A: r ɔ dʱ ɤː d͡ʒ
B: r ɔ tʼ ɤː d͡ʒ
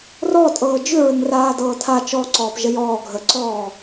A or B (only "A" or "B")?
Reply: B